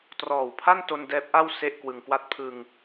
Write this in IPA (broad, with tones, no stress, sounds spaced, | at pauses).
t r ɔː˨˩ w pʰ a˥˩ n t o˧ n d ɛː˦˥ p̚ ʔ a˥˩ w s e˥˩ ʔ k w ɯ˧ ŋ k w a˥˩ t̚ pʰ ɯ˧ ŋ